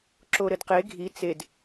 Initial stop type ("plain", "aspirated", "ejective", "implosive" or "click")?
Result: click